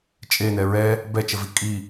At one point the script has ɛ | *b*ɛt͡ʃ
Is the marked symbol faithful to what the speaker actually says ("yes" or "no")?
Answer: yes